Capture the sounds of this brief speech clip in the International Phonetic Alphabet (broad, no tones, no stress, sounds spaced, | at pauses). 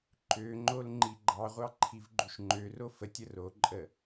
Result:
ǃ ø ŋ͡ǃ o l ŋ͡ǃ i ɡ͡ǃ ɑ ʁʷ ɑ ǃʰ i v ɡ͡ǃ u ʃ ŋ͡ǃ ø r o f ə tʲ ə r o ǃʼ ə